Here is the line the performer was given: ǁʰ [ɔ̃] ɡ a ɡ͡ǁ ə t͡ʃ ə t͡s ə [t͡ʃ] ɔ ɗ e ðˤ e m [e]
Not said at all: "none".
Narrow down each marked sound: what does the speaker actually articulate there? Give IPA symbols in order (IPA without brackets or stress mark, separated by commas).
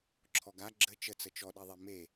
ɔ, t͡ʃ, e